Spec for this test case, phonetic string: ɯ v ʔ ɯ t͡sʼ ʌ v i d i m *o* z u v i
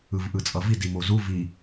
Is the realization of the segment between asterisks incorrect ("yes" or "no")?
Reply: no